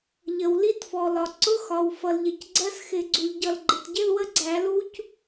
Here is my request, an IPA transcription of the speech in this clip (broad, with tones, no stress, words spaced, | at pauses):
ʎə˩w li˧˥˧tfɔ˩lɒ˩ ǀʊ˧˥˧xɒ˩w fʌ˩lʎɪ˩cɡ͡ǀɜ˧˥˧sxɪ˧˩˧ ɡ͡ǀu˩ʎɟʌ˧˩l ɡ͡ǃɪ˩tɟɪ˧˥˧lwə˦˥ɡ͡ǀæ˧˩˧ lu˦˥c